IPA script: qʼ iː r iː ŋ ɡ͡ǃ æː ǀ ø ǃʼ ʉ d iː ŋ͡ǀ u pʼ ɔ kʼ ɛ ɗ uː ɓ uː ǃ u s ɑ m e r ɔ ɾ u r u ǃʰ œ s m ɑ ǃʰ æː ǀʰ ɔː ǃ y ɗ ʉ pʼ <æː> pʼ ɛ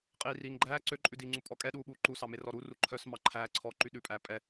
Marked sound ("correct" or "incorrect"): correct